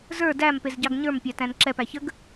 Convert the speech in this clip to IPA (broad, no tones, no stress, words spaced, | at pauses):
zə˞ dæm pezɟɑɡɲə˞m pʲætæ̃nǁɛp æçəɡ